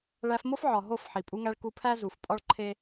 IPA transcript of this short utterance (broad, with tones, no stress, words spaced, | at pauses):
ɭæ˧fmo˦fʕɒ˨ ɦo˦˨f ħi˨pʼu˧ŋæ˧ɭ ku˧pʰæ˦ zu˨f pʼɒ˦ɭǃʰe˦